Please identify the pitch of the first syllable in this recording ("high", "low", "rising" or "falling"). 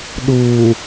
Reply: low